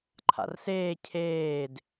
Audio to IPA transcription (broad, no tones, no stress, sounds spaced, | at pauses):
ǃʰ a̰ r s eː cʰ eː d